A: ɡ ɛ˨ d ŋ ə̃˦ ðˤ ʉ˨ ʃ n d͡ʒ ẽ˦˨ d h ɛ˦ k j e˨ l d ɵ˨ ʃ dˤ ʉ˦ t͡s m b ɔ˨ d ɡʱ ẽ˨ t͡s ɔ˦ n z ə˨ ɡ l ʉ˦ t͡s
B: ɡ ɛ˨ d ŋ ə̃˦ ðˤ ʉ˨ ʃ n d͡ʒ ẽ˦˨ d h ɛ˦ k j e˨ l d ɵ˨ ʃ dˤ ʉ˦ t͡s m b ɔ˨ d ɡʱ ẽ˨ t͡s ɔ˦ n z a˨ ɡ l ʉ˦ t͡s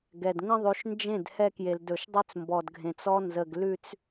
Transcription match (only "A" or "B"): A